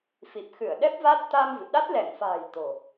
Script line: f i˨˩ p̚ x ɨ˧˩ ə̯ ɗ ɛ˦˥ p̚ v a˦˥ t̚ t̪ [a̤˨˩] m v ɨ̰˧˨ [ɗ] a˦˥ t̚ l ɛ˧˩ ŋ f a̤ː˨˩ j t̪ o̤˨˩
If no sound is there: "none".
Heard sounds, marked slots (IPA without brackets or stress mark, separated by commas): a˧, ɗ